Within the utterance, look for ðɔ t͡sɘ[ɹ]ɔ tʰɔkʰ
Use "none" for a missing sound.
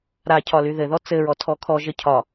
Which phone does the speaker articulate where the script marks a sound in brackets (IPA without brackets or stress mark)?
ɹ